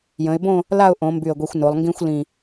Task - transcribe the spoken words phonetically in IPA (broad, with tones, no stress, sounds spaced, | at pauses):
j ə̃˩˧ ɪ̯ b õ˥˧ | l a˥˧ ʊ̯ ʔ õ˩˧ m b y˧˩ ə̯ ɡʷ i˧ xʷ n o˩˧ lˠ ŋ ɡ ĩ˥ xʷ l ĩ˧˩